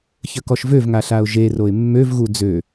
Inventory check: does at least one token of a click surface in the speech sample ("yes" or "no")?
no